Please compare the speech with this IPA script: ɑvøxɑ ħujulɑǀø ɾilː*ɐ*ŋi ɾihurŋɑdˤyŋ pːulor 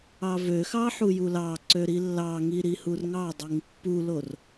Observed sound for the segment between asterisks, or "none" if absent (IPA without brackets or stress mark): ɑ